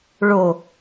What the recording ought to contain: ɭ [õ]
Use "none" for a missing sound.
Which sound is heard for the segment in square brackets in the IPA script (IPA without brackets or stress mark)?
o